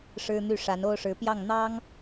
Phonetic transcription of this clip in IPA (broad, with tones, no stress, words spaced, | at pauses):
ʂɻ̩˥n̪y˥˩ ʂa˧˥no˥ʊ̯ʂɻ̩˧˥ pjɑ˥˩ŋ n̪ɑ˥ŋ